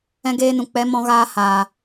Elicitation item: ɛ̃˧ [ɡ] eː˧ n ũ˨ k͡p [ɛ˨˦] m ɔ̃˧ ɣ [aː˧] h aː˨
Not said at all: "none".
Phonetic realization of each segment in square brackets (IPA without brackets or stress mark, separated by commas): ɡ, ɛ˨˦, aː˧